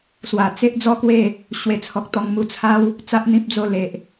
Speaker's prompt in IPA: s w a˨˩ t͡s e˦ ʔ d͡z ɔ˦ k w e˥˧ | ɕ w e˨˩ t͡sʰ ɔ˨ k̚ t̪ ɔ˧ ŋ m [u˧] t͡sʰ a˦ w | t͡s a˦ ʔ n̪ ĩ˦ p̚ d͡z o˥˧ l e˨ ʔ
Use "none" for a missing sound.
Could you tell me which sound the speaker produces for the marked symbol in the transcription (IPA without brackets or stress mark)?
u˧